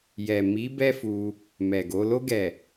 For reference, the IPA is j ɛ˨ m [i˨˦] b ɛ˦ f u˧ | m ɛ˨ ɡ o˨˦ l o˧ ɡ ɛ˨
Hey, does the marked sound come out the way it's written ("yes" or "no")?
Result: yes